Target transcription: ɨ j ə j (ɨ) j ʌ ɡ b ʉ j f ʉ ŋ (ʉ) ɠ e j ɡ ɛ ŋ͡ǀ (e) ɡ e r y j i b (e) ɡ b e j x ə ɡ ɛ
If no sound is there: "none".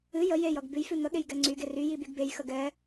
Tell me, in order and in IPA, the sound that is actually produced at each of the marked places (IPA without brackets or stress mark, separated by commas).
e, ə, y, y